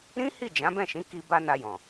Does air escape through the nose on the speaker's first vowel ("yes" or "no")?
yes